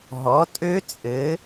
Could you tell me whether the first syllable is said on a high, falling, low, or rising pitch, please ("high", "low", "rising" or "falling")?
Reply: rising